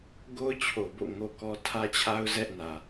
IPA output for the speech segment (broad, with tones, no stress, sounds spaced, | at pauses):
ɡ o˦ ʊ̯ t͡ɕʰ o˨ b o̰˦˨ ŋ o˦ k ɔ˦ tʰ ä˦ t͡ɕʰ a˦ ʊ̯ z ɛ˦ ʔ n ä˨